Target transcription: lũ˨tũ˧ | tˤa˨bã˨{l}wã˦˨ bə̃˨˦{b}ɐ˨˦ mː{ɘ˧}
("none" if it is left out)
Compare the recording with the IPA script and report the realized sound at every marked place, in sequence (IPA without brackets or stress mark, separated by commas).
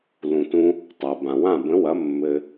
none, w, ɘ˧